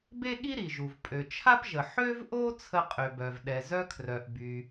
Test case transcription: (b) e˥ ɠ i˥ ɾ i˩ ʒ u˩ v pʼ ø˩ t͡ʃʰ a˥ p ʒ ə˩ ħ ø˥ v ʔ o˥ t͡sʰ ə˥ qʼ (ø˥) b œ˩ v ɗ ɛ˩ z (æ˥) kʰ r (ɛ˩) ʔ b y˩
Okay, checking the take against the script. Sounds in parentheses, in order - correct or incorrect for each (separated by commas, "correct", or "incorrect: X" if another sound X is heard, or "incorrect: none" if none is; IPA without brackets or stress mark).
correct, incorrect: ø˩, incorrect: œ˥, incorrect: œ˩